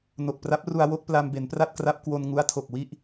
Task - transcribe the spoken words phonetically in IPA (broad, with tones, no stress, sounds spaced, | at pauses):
n o˨˩ k̚ p r a˦˥ p̚ r u˧ a̯ w o˥˩ k̚ p l a˧ m b e˩˦ n p r a˥˩ t̚ k r a˦˥ p̚ k w o˧ n ŋ u˦˥ a̯ tʰ o˨˩ k̚ w i˥˩ ʔ